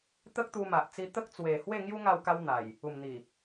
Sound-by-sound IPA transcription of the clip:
t̪ ə˦ k̚ t̪ u˧ m a˨ ʔ t͡s i˧ t̪ ə˦ k̚ t͡s w e˨˩ h w e˥˧ ŋ j u˦ ŋ a˥˧ w k a˦ w n̪ a˨˩ j | u˨˩ m n̪ i˨˩

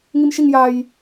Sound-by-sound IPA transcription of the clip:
ŋ i m ʃ i ŋ j a j

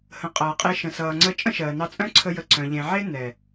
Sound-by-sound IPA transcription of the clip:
h ə̃˨ qʼ ʌː˨ qʼ e˧ ʃ ə̃˨ s ʌː˨ ŋ͡ǀ ə˧ t͡ʃʼ ə̃˦ ʃ ɜː˨ n ɑ˧ t͡sʼ œ̃˦ ǀʰ ə˧ j ə˨ ǀ œ̃˨ ʎ ẽ˨ ʕ e˦ n ɛ˨

